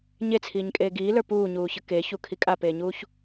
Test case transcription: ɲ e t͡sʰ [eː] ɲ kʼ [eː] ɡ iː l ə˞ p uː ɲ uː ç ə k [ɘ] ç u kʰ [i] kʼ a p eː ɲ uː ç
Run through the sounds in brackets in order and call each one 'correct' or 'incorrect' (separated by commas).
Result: incorrect, correct, incorrect, correct